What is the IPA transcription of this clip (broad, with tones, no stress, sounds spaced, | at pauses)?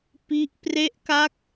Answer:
p i˦˥ ʔ p r e˦˥ ʔ k a˦˥ k̚